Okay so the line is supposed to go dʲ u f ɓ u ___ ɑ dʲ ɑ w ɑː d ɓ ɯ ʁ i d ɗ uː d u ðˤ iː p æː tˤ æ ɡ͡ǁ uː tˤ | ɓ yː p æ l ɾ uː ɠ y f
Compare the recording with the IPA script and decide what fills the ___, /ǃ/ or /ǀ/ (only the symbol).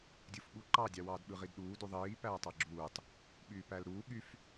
ǃ